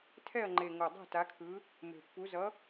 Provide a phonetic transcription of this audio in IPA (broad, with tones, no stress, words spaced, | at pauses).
tʰɛ˥˨ɐ̯ŋ͡ǃe˨˩ ŋo˨˩dˤo̤˥˨ta˨˦kʰɯ˨˦ | me̤˨˩pːu˨˦ zʌ˨˦